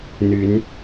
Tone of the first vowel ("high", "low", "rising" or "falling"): rising